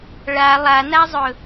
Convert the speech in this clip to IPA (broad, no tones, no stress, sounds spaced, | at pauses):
ɭ a lˠ a n a zˤ ɵ